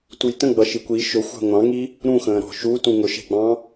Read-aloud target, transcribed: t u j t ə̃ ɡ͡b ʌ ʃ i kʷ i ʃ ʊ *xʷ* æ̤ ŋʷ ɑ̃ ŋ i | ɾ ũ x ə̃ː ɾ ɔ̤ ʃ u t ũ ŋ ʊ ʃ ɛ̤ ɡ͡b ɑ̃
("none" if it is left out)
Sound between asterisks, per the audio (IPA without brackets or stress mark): xʷ